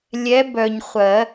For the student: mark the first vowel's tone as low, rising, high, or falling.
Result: rising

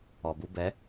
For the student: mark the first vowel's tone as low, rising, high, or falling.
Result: low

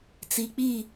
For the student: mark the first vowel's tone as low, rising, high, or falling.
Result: low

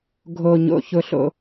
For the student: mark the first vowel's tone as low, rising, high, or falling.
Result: low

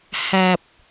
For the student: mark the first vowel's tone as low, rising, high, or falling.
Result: low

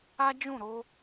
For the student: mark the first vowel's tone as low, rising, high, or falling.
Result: high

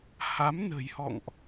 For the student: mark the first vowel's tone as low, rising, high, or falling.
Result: rising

